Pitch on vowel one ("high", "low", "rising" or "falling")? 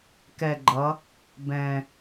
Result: low